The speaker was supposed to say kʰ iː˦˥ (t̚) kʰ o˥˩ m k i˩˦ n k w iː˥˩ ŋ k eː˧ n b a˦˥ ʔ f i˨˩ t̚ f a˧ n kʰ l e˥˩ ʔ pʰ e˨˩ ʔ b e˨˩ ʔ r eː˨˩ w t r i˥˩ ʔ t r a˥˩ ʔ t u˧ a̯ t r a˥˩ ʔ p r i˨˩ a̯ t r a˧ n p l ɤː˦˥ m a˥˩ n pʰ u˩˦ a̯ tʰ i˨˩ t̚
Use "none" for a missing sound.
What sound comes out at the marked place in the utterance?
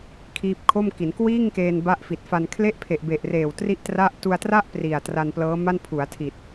p̚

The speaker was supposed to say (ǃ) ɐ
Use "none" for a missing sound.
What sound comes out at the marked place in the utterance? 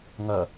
ŋ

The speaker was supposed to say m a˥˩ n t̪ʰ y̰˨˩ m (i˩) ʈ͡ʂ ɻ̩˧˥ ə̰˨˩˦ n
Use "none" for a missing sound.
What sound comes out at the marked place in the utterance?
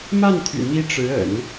i˧˥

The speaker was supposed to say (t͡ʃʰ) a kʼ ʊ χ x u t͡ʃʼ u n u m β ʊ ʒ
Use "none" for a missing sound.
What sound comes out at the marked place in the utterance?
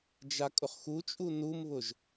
d͡ʒ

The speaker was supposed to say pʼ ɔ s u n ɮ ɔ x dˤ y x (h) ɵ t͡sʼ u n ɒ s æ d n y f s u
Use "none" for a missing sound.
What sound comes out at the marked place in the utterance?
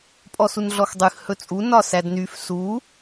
h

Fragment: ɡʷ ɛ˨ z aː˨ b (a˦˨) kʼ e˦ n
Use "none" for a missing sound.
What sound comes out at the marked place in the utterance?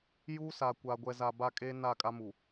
a˦˨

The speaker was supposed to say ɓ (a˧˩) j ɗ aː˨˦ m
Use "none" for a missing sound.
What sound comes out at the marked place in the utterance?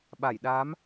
a˧˩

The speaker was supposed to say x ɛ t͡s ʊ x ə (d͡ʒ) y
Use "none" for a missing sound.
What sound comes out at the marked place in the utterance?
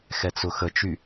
t͡ʃ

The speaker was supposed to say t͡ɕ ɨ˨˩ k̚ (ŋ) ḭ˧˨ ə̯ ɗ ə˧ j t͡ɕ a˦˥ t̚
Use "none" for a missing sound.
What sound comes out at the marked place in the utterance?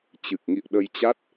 ŋ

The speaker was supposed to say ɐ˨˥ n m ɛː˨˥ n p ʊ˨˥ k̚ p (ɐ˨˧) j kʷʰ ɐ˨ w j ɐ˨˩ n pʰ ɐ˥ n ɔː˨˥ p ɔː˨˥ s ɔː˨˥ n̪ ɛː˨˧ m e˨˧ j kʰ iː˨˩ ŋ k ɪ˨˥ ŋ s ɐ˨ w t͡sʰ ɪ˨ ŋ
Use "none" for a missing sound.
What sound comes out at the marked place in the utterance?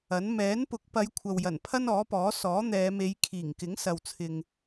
ɐ˨˧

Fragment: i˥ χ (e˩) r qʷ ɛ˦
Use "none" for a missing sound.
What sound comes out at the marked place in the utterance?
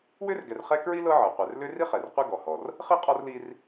ɛ˩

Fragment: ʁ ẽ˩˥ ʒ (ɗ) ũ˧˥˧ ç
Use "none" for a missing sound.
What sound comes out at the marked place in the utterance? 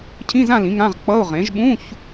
ɓ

